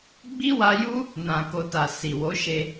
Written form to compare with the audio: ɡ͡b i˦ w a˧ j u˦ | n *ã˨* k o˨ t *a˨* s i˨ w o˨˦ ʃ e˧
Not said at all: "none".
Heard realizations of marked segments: ã˨, a˨

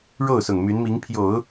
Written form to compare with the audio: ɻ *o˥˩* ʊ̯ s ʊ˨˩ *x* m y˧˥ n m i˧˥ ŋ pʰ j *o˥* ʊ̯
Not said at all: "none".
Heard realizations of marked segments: o˥˩, ŋ, o˨˩˦

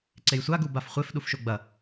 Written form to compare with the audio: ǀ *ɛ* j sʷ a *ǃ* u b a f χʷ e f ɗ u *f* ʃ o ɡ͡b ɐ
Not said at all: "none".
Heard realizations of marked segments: e, ɡ, f

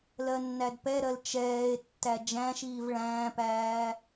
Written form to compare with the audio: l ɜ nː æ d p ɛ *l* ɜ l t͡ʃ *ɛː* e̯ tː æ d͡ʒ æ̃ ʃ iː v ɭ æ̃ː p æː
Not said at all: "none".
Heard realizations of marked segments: ɾ, ɛː

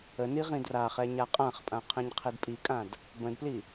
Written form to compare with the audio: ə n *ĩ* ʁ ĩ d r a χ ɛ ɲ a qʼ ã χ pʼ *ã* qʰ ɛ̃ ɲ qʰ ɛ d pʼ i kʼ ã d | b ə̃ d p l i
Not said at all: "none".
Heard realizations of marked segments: i, ã

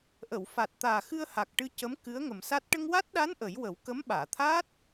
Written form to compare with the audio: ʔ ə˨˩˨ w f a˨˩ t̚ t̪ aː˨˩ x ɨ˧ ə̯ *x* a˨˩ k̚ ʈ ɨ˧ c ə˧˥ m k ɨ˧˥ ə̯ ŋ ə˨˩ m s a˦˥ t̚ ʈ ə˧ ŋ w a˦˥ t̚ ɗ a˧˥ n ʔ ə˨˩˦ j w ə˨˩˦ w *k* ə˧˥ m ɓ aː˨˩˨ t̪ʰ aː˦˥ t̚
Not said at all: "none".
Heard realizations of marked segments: h, k

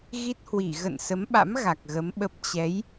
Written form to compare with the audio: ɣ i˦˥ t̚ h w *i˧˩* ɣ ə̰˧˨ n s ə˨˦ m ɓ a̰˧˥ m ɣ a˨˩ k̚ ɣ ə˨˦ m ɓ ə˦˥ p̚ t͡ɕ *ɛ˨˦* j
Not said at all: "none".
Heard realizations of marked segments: i˧˩, ɛ˨˦

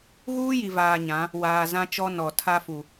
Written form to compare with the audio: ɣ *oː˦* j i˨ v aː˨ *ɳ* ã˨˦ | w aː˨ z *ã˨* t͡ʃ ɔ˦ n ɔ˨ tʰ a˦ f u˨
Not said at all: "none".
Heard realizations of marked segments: uː˦, ɲ, ã˦

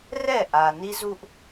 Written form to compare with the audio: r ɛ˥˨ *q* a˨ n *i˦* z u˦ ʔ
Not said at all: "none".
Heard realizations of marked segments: ʔ, i˦

